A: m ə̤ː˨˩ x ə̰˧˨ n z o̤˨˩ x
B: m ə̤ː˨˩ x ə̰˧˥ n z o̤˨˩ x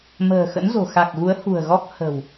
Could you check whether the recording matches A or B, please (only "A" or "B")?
B